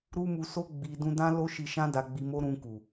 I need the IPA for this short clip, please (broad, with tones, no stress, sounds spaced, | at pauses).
ɾ u˦ m u˧ s o˦ ɡ͡b i˧ d ũ˧ d ã˦ l o˦ ʃ i˧ ʃ ã˦ d a˧ ɡ͡b i˧ m o˦ ɾ ũ˧ k u˨